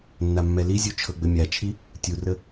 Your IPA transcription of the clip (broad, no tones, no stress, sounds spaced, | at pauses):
nː a mː ɛ l i zʲ u t͡ʃʰ ɤ ɡ͡b ɘ mʲ a t͡ʃʰ i | tʲ u r ə